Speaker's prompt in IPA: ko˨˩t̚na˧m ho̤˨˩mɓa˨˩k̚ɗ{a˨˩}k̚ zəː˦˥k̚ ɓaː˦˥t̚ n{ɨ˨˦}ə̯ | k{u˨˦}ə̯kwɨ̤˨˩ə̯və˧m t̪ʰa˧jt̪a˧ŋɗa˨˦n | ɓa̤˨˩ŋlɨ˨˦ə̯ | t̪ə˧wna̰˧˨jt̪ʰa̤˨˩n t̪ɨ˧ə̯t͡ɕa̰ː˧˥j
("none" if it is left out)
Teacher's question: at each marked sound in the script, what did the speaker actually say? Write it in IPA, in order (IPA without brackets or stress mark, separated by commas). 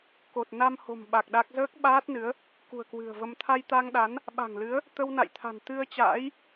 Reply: a˦˥, ɨ˨˦, ṳ˨˩